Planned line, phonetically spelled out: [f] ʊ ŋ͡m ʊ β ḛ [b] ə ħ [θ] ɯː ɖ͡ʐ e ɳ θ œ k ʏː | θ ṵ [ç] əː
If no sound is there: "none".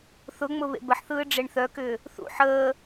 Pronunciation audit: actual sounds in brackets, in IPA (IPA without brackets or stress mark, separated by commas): θ, b, θ, ħ